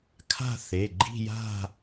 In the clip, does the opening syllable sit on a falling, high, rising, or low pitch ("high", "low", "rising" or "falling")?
falling